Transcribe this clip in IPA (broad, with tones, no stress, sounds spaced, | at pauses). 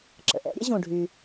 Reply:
ǁ ə̰˩ ʔ ɛ̰˥ ɾʲ ə̰˥ ʑ ũ˩ ɖʱ y˩